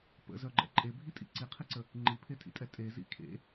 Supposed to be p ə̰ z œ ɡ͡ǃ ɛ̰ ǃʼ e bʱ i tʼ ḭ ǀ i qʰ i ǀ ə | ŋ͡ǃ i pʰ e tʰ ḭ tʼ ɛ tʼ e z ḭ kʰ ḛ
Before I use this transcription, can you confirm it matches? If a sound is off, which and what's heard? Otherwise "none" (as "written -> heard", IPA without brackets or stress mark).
none